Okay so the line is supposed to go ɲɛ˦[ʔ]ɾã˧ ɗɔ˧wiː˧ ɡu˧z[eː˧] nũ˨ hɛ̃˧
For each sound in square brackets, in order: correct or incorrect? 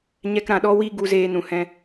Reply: incorrect, correct

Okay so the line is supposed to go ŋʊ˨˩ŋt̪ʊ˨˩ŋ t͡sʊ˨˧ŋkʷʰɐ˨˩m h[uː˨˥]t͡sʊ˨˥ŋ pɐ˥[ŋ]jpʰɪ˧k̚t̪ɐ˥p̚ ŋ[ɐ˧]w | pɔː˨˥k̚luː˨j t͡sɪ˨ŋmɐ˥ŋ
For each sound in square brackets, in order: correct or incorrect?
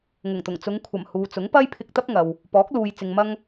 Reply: incorrect, incorrect, incorrect

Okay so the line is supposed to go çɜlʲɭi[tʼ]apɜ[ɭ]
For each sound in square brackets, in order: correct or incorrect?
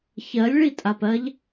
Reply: correct, incorrect

